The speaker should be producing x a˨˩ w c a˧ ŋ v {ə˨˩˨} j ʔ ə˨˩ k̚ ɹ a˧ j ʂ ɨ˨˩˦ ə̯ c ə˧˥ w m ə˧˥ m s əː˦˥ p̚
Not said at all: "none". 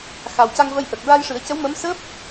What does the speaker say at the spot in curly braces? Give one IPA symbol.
ə˧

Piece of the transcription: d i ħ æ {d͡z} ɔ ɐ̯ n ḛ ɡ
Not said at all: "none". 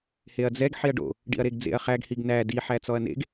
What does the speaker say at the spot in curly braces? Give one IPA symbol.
t͡s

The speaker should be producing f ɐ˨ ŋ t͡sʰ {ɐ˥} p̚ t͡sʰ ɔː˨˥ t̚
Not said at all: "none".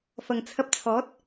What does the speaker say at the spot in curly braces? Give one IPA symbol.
ɐ˧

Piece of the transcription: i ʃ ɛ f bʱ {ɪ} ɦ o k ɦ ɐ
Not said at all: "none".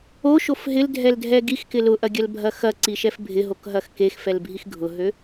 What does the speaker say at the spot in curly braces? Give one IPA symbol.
ɪ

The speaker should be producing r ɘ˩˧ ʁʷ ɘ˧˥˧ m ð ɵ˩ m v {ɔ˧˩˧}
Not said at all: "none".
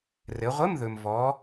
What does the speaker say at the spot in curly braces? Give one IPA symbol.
ɔ˩˧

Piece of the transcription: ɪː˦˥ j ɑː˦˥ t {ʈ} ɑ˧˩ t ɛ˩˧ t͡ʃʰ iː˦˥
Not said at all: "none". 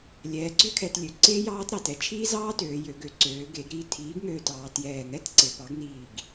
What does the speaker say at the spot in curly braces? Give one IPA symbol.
ɾ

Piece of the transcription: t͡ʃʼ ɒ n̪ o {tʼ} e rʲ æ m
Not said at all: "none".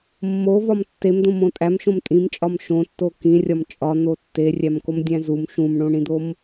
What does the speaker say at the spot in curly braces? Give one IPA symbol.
tː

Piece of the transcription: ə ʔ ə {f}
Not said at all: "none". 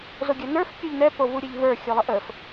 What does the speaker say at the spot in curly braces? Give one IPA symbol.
f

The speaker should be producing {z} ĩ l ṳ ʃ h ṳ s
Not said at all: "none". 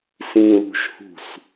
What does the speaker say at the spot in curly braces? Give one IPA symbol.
s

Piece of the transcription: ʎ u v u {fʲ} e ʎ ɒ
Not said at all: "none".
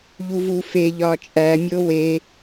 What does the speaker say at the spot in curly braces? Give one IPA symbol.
f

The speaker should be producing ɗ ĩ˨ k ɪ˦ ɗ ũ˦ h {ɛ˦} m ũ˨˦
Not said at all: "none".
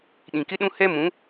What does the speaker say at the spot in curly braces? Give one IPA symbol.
ɛ˦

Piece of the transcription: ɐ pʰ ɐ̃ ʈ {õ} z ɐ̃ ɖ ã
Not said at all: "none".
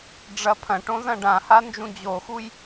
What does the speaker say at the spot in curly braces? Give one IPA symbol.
õ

